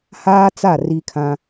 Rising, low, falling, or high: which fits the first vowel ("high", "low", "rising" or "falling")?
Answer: high